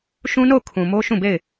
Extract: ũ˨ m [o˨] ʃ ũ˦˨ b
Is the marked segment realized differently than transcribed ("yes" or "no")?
yes